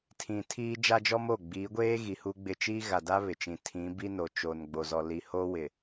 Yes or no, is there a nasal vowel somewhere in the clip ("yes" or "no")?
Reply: yes